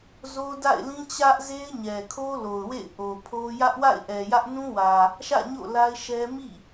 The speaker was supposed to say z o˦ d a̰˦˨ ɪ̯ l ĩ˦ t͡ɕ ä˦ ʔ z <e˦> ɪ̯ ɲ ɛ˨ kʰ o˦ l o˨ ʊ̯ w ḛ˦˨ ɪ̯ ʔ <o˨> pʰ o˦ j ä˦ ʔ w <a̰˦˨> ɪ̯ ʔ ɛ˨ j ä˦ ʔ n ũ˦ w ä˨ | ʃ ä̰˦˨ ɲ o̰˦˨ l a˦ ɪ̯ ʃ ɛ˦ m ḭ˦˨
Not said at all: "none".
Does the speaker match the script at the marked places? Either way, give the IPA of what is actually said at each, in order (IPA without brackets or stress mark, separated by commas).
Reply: e˦, o˨, a̰˦˨